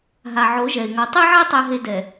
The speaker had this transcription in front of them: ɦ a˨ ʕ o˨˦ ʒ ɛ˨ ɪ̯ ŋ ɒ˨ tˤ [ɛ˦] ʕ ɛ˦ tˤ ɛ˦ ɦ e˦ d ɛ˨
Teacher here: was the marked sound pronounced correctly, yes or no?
no